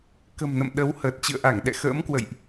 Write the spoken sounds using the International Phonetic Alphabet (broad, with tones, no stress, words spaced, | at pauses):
kə̤˨˩mnə̰˧˨m ɗə˨˦whəː˨˩t̚ t͡ɕɨ̰˧˨ə̯ʔa˧˩ŋ ɗɛ̰˧˨xə̰ː˧˥mkwə̰˧˨jʔ